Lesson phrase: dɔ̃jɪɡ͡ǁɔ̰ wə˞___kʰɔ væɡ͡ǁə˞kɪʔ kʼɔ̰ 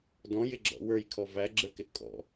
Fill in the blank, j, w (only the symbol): j